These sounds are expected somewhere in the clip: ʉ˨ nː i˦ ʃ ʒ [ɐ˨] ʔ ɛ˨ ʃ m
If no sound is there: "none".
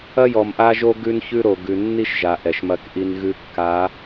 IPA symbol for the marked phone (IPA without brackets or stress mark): a˨